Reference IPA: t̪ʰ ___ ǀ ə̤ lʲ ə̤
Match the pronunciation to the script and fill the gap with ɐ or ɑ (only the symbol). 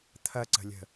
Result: ɐ